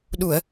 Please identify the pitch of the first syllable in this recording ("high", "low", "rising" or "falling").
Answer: low